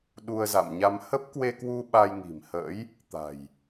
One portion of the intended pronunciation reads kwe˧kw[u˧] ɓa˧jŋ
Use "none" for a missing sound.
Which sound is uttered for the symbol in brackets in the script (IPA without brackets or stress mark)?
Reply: u˧